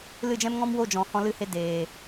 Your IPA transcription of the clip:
l ɨ˦˨ d͡ʒ ɛ̃˦ m ŋ ɔ̃˦ m w o˦˨ d͡ʒ ɔ̃˨ h ɔ̃˦ l ɨ˦ h e˦ d eː˨

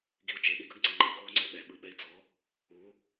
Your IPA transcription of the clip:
ɡ i u̯ t͡ʃ e ɗ i ɡ ɯ ɡ ŋ͡ǀ e ŋ͡ǃ e ɡ oː ŋ͡ǀ ɛ ɓ ɛ ɓ ɯ ɓ ɛ i̯ d͡z ɔ | u

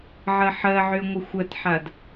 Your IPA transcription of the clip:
ʕ ɜ ħ ɜ ʕ y ə̯ ŋʷ ə xʷ ɜ t ħ a d

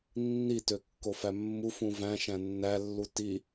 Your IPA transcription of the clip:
nː i t ø kː o f æ mː u f ũ v æ̃ ʃ æ̃ nː æ lː u t i

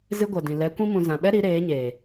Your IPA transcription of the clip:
z ɨ˦ ɡʷ ɛ˨ d ĩ˨ l ɛ˨˦ kʷ ĩ˦ m ũ˧ z ã˨ ɓ ɛ˦ ɾ i˨˦ ɾ eː˨˦ ɲ eː˨

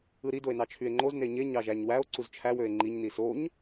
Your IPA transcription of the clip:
ɯ ɾ i d o e̯ n ɑ t͡ʃʰ y e̯ ŋ͡ǃ o z n e ɲ e ɲ ɑ ʒ æ ɲ w æ o̯ ǀ u z t͡ʃʰ æ w ø e̯ ŋ͡ǃ i ɲ n i s o ɲ

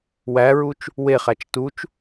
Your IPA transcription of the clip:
w æ ɹ u t͡ʃ | w e χ æ t͡ʃ t u t͡ʃ

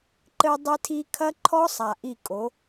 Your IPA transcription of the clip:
ǃ ɘ˦ dˤ ɨ˦ tʰ i˦ kʰ ɐ˦ ǃʰ ɔ˦ sˤ a˨ ʔ i˦˨ kʼ o˨˦

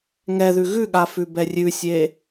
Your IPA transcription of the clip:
ŋ ɛ ð ʉ ɣ ʉ ɠ a f ʉ b ɛ rʲ ʉ sʲ e

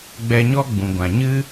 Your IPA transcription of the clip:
ɡ͡b ɛ˧ ɲ ɔ˦ ɡ͡b ũ˨ ɡʷ ã˨ ɲ ɨ˦

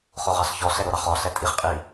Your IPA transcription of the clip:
χ o ʁ ɑ ɬ ç ɔ ɬ ɛ ɾ o ɾ ɑ χ ɔ ɬ ɛ tʼ i χ qʼ i

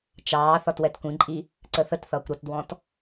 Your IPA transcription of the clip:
t͡ʃ ɑː θ ɒ t w ɛ t kʷ ĩ ǃʼ i | ǀ ə θ ə t θ ʌː kʷ ɾ ʌ t d w ɔ̃ t

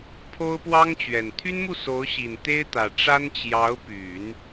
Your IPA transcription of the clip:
pʰ o˥ ʊ̯ p w ɑ˥ ŋ t͡ɕ ɥ ɛ˨˩ n t̪ʰ y˥ n m u˥˩ s o˧˥ ʊ̯ ɕ i˨˩ n t̪ e˥ ɪ̯ t̪ ä˨˩ ʈ͡ʂ a˥ n t͡ɕ j ɑ˧˥ ʊ̯ p y˨˩˦ n

